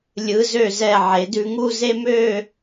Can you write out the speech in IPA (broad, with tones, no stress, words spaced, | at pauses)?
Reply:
lʲɯ˩˧zø˧˩zɛ˧˩ ʕe˩˧dʉ˧ŋu˥˧ ze˥m ø˥˧